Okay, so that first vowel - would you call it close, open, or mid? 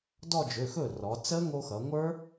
mid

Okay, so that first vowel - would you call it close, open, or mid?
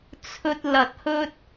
mid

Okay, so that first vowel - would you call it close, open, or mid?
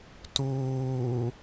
close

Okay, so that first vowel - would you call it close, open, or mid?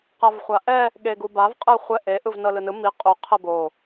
open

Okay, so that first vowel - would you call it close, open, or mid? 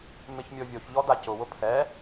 close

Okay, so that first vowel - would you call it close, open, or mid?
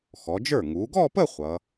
mid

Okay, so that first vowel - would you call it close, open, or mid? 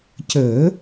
mid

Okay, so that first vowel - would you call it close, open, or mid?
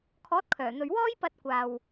mid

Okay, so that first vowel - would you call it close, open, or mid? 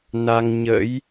open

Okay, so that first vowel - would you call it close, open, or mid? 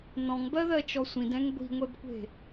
mid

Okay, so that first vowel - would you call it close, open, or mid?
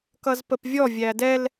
mid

